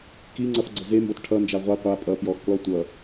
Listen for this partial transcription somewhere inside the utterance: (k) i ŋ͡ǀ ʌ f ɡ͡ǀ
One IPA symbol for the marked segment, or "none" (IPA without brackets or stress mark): k